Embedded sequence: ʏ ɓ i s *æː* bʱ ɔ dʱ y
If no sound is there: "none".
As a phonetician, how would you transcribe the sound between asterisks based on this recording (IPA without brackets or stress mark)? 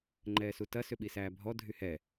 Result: æː